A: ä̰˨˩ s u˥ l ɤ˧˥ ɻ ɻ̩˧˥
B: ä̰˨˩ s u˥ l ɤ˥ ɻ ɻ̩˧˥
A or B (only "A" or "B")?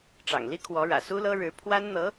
B